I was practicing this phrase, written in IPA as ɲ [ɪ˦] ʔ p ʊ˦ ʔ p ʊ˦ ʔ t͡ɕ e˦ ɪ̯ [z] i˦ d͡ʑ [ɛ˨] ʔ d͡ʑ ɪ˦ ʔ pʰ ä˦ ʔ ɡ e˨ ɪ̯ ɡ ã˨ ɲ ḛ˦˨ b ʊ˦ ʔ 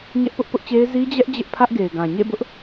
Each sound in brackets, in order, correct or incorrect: incorrect, correct, incorrect

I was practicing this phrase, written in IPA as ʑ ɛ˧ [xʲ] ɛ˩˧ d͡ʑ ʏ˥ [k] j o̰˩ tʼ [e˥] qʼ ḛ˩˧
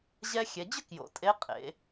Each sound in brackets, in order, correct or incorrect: correct, correct, incorrect

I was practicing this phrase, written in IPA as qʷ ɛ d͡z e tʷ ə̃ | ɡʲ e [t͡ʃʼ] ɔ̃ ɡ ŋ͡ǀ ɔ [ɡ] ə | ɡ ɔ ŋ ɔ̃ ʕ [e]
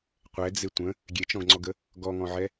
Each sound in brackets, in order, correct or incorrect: incorrect, correct, incorrect

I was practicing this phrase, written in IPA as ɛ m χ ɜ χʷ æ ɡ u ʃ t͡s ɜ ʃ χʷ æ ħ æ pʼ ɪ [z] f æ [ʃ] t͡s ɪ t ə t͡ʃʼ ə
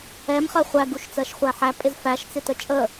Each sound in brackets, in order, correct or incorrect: correct, correct

